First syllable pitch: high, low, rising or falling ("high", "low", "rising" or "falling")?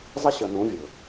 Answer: high